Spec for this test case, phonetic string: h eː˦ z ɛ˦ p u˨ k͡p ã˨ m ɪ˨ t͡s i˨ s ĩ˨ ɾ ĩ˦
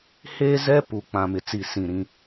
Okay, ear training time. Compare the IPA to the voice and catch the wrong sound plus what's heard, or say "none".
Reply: none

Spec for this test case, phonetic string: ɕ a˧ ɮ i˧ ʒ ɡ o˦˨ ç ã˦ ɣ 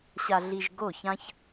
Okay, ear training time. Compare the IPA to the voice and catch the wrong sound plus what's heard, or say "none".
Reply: ɣ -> ç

